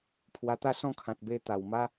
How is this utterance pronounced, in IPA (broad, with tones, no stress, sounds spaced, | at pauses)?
pʰ w a˧ t̪ a˥˧ s ɔ̃˥˧ kʰ ã˨ t̚ b e˧ t̪ a˨˩ w m a˦